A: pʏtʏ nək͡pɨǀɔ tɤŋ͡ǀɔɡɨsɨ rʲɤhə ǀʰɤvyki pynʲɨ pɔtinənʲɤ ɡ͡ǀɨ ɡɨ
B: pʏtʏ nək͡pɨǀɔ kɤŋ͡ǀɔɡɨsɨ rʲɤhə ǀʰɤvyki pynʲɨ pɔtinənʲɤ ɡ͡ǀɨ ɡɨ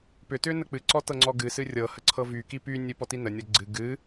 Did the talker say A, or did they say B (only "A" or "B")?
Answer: A